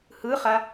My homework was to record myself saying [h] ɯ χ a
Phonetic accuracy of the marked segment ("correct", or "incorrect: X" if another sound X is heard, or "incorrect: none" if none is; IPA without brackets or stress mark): correct